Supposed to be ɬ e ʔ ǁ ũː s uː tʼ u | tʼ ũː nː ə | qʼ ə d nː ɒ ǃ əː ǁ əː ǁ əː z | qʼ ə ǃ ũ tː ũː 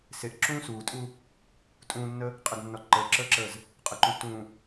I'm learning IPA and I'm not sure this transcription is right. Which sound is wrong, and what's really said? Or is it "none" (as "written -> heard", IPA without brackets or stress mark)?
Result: ɬ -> s